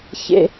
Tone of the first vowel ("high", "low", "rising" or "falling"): high